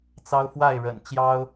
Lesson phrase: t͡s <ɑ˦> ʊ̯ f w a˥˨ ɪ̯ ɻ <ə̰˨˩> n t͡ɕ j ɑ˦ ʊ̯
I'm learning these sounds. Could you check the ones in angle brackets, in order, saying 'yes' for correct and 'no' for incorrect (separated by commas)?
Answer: yes, yes